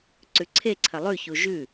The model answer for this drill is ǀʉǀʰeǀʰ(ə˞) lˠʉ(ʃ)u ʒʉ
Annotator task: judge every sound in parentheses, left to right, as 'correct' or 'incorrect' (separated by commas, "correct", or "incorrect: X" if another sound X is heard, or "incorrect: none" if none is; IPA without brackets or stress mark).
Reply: incorrect: ɐ, incorrect: ç